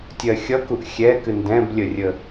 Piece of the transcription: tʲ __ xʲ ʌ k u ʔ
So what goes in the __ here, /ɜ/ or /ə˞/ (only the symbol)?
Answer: ɜ